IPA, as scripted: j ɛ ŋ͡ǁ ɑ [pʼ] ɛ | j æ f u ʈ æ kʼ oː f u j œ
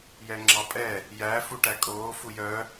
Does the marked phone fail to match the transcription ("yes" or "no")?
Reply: no